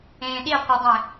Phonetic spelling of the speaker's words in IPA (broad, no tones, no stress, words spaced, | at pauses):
ẽːɗi qʷedˤẽ